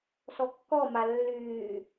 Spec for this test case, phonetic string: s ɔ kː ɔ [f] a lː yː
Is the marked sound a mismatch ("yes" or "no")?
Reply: yes